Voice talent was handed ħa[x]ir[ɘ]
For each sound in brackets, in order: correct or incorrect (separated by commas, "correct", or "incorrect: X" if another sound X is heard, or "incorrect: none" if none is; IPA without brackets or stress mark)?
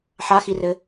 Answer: correct, correct